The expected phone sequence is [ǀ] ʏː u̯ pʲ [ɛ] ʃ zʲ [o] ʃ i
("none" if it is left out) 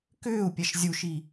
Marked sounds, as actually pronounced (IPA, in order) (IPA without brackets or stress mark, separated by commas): k, ɛ, u